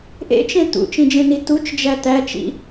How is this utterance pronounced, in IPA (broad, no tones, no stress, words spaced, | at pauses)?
ʔḛt͡ʃẽ t̪ṵt͡ʃĩd͡ʒẽni tut͡ʃd͡ʒæ t̪æt͡ʃḭ